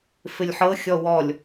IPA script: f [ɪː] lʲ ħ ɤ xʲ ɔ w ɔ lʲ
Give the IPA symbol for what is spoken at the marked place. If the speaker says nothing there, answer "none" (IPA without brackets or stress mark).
ɪ